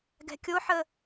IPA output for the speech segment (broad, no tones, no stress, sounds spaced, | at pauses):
ɡ ɛ̤ kʲ o ħ ə